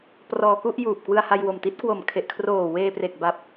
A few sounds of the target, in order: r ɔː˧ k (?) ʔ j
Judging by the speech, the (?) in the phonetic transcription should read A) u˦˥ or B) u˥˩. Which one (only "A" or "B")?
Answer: B